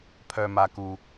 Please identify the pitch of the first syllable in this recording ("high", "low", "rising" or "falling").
low